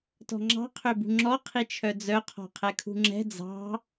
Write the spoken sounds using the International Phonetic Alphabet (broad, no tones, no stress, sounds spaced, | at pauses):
t ɔ̤ ŋ͡ǁ ɑ̤ qʰ ø b ṳ ŋ͡ǁ ɔ qʰ i t͡ʃʰ œ d͡z œ qʰ ɔ̤ qʰ ɛ kʰ ṳ ŋ͡ǁ ɛ̤ d͡z ɑ̤